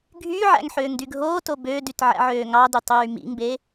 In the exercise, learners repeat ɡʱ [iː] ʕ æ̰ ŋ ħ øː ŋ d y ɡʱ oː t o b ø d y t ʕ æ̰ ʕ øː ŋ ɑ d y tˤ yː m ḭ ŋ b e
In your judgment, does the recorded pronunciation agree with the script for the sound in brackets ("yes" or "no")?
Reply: no